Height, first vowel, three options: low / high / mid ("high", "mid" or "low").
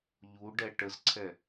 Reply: high